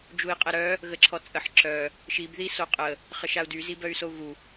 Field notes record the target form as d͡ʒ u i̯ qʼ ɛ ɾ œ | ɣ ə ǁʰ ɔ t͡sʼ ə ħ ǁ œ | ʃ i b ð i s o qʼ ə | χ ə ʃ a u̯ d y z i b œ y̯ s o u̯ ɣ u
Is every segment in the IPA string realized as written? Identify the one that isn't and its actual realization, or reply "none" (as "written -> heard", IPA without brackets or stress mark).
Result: none